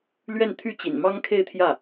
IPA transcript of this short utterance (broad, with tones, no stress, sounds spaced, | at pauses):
l ɥ ɛ˥˧ n t̪ʰ y˥˩ t͡ɕ ḭ˨˩ n m ɑ˥ ŋ kʰ e˥˧ ɪ̯ t̪ʰ j ä˥˩